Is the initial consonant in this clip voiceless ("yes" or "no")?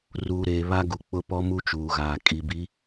no